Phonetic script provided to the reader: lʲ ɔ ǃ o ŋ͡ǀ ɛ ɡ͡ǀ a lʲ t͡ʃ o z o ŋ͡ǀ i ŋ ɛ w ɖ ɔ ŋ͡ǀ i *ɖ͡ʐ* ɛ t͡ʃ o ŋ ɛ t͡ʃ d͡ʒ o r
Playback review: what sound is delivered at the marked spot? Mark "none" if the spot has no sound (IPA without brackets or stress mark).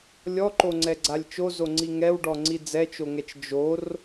d͡z